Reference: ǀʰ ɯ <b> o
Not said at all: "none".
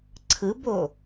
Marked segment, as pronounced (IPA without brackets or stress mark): b